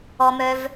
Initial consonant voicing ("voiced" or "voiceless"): voiced